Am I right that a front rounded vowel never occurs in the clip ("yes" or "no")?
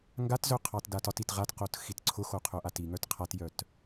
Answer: no